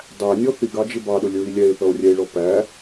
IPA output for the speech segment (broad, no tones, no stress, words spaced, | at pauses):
dˤænʲɔ θiɡɑd͡ʒɪ bɑɗʊlʲɹi lʲɛe̯θʌo̯rʲɛe̯ɭɔ pæ